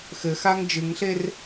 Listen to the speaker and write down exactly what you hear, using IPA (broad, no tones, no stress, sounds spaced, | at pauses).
x ɘ x a ŋ d͡ʒ ɨ ŋ ɬ e r